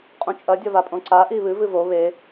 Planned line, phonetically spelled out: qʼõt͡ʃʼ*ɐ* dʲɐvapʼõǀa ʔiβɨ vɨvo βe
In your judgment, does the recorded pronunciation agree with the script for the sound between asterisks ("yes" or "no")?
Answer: yes